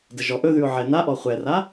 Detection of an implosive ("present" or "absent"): absent